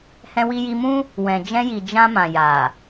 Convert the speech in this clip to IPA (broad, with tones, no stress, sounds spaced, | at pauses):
h ɛ̃˧ w i˧ j i˧ m ũ˦ | w ɛ̃˨ d͡ʒ ɛ̃˧ j i˨ d͡ʒ ã˧ m ã˨ j a˨